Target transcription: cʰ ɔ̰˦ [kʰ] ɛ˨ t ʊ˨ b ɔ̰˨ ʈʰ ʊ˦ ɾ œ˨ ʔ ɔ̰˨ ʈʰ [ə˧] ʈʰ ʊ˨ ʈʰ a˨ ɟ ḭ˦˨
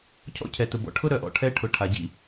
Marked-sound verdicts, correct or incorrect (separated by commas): incorrect, incorrect